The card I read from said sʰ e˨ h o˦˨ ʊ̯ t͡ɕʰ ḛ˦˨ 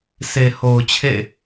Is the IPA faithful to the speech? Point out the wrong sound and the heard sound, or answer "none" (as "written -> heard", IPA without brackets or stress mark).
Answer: o˦˨ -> o˨